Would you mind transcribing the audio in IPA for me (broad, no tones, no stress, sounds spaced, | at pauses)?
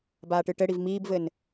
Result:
b aː ʈ ɨ ʈ ɘ ɽ i v m iː b v ɘ n